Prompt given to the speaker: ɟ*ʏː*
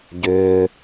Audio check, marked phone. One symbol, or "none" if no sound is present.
ʏː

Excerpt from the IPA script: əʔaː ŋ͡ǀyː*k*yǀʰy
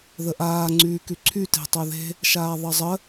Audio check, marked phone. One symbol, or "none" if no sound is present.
k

